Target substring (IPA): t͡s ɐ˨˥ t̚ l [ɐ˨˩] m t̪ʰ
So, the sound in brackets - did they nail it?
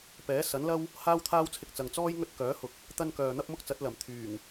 yes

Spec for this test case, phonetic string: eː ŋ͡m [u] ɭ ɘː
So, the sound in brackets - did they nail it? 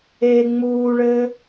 no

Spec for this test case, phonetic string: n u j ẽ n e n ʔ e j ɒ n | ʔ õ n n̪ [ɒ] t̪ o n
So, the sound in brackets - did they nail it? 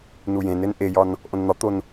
yes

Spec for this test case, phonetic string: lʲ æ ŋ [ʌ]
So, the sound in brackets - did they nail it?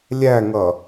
yes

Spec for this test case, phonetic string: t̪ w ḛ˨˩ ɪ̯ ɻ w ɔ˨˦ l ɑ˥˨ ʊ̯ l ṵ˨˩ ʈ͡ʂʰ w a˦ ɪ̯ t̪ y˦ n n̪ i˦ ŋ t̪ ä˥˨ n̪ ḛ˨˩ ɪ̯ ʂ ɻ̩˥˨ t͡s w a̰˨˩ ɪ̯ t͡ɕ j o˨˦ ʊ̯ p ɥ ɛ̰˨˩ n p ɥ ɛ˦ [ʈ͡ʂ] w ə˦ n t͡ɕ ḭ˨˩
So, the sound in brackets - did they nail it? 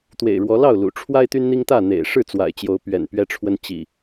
no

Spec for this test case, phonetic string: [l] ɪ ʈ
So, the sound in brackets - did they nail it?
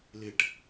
yes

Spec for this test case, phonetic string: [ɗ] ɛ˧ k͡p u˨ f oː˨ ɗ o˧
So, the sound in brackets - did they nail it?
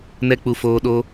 no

